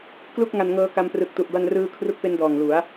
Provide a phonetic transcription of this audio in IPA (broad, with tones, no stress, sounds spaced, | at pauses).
k l u˥˩ k̚ ŋ a˧ n ŋ ɤː˦˥ k a˦˥ m p r ɯ˨˩ k̚ t u˨˩ ʔ b a˧ n r ɯː˧ kʰ r u˦˥ k̚ p e˦˥ n d ɔː˨˩ ŋ l u˩˦ a̯